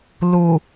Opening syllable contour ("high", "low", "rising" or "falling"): low